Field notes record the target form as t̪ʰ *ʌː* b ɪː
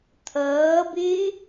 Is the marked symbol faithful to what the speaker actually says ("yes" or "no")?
yes